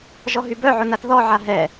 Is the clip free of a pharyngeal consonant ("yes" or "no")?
no